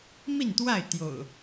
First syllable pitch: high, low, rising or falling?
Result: falling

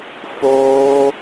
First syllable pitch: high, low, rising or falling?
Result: high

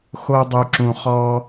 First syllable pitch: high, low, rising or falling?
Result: high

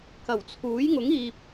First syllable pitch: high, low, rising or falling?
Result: low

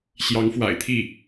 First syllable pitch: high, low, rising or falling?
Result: rising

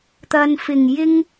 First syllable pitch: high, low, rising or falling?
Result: low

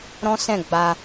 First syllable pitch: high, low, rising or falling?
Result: high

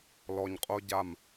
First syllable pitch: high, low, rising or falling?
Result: low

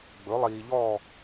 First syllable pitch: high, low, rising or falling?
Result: rising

